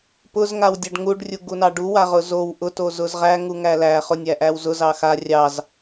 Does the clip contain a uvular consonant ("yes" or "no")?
yes